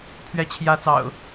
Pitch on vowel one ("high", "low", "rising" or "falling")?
falling